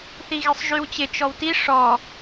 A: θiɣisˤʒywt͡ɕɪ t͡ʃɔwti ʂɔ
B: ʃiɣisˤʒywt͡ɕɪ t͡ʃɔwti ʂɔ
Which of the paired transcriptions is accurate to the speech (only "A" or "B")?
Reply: A